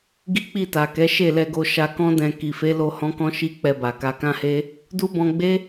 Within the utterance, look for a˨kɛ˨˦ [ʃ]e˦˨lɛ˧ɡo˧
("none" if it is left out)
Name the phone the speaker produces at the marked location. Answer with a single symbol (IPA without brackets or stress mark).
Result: ʃ